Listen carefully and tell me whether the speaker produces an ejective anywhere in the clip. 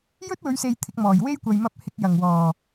no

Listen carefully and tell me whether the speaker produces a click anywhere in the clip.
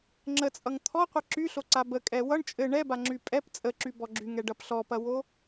yes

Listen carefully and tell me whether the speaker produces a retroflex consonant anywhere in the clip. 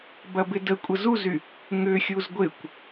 no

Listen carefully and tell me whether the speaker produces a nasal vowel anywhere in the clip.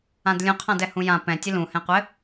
yes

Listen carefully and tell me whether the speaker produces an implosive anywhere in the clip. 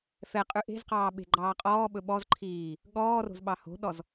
yes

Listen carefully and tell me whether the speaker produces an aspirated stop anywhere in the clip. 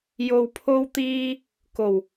yes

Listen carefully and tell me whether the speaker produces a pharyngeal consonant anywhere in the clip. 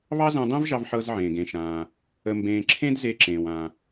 yes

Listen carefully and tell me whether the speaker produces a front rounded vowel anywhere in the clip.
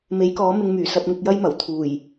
yes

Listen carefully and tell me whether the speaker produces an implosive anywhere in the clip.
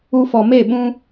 yes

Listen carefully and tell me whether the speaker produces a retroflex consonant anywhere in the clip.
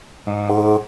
no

